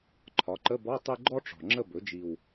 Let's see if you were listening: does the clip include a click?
yes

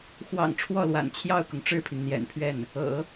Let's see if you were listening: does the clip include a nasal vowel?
no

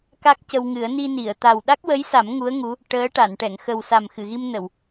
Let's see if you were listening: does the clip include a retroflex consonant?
yes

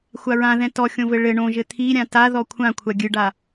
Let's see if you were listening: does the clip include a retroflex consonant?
yes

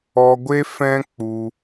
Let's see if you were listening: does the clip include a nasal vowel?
yes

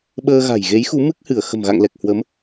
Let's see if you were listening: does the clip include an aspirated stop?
no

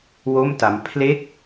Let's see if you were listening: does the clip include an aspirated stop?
yes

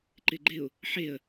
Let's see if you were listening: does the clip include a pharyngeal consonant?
yes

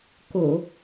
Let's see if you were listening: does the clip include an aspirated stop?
no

